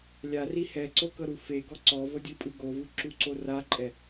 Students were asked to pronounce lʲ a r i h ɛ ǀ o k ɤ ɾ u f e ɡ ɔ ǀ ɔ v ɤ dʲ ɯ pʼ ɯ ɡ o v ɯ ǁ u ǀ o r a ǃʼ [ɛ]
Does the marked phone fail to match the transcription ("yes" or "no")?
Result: no